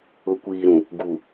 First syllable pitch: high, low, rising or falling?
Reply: rising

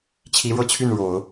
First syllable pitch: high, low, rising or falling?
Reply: rising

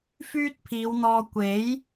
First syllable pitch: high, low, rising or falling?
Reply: high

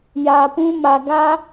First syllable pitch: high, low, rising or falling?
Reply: low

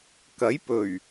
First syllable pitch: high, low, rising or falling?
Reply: rising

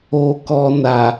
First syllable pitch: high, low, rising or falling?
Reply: low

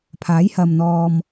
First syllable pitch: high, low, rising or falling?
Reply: rising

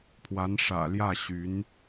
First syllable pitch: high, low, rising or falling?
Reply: rising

